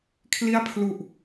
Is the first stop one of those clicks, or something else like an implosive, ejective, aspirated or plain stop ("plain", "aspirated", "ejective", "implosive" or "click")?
aspirated